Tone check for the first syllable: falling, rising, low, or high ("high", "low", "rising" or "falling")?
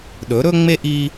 rising